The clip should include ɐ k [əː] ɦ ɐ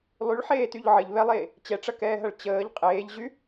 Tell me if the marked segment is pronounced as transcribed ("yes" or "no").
no